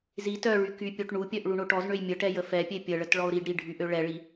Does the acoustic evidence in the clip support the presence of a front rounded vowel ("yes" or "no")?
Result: yes